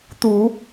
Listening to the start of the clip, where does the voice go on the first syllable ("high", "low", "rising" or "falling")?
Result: low